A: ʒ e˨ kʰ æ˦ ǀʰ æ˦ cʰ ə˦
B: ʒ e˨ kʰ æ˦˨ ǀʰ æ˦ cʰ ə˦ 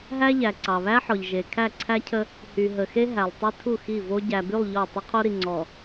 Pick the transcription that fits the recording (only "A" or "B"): B